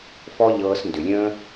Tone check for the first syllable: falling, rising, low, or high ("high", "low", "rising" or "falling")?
high